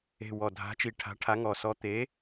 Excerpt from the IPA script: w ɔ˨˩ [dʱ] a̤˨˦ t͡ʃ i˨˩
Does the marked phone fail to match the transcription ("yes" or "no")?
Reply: no